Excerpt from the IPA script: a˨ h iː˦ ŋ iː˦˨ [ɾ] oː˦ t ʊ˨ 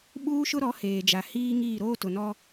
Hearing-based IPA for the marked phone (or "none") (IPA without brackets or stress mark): ɾ